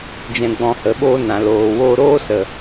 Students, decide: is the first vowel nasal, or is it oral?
nasal